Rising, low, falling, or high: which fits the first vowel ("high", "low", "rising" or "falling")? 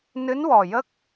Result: rising